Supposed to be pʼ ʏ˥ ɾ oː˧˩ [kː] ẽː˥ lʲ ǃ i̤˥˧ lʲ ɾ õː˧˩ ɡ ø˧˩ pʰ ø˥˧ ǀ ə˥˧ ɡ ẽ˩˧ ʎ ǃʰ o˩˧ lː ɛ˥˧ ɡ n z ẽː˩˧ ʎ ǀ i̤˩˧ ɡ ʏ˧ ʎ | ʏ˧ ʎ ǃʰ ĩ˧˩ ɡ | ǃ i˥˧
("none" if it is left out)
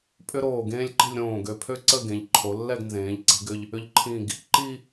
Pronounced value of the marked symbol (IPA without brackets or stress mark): ɡ